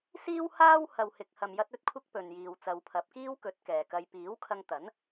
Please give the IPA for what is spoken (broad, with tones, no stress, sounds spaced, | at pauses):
s iː˥ w h aː˥ w h ɐ˨ w h ɪ˨ k̚ h ɐ˨ m j ɐ˧ t̚ ɵ˥ t̚ kʷʰ ɪ˥ k̚ p ɵ˨ n j iː˨ w t͡s ɐ˨˧ w pʰ ɐ˨˥ p̚ k iː˥ w k ɵ˨˥ t̚ k ɛː˨ k ɐ˧ j p iː˨˥ w kʰ ɐ˧ ŋ t̪ ɐ˨˥ n